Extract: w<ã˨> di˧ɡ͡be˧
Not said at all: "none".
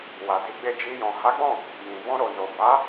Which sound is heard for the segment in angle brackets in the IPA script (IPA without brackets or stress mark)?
a˨